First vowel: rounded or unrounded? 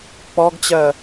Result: rounded